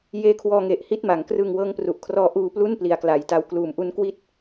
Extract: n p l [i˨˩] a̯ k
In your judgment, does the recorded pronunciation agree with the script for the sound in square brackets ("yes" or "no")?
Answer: yes